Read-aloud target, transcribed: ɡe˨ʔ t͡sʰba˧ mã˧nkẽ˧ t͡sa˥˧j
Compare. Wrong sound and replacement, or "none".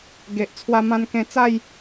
b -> w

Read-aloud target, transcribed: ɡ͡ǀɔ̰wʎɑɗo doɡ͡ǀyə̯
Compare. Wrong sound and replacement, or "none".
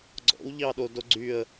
none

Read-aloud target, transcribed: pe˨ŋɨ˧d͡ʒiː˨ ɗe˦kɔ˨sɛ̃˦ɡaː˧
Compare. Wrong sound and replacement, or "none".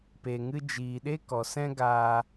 none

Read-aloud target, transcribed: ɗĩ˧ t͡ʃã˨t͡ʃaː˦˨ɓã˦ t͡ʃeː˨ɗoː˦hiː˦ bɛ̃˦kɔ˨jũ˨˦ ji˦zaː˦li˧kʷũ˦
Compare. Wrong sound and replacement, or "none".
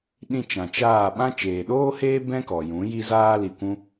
iː˦ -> eː˦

